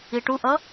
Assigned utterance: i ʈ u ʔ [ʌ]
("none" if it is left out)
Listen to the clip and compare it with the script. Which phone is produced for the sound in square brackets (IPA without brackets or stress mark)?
ʌ